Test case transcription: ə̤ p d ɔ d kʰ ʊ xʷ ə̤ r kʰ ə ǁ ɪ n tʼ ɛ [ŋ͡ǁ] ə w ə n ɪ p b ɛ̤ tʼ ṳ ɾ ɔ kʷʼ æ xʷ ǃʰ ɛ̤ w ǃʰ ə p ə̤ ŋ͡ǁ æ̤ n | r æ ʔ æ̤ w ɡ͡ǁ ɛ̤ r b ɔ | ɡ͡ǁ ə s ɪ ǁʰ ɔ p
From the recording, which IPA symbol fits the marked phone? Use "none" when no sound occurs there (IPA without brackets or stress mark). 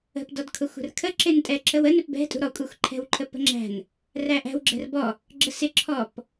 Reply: ǁ